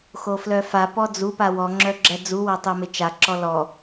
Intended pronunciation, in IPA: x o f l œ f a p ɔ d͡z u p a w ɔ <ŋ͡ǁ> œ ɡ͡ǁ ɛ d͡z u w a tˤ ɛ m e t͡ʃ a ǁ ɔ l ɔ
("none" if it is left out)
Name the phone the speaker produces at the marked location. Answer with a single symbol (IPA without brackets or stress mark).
ŋ͡ǁ